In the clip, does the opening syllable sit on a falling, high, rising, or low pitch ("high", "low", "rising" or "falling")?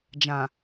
low